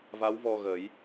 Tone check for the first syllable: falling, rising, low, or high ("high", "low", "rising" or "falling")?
rising